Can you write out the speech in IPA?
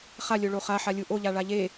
χ a lʲ o ɭ o χ a ħ a lʲ u ʔ o ʎ a ɭ a ʎ e

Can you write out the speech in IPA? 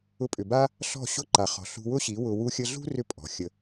ʊ˧ pʼ ʏ˨ b a˦ | ɬ ɔ̤˦˨ ɕ ʊ˦ ǃ a˨ χ ɔ̤˨ ɬ ṳ˧ w ʊ˦ ɕ i˨˦ w ʊ˧ w u˧ xʲ ə˧ ɮ ṳ˦ r ʏ˧ pʼ ɔ̤˨ xʲ ə˧

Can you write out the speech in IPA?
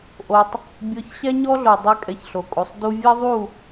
ʔ o˧ tˤ | bʲ ɔ˧ ç ɕ ɛ˦ ɲ ɔ˦ ɮ o˨ dˤ ɨ˦ kʼ ɛ˧ ç ɬ o˨ kʼ u˨ sˤ d u˧ vʲ ɛ˦ ðˤ u˦˨

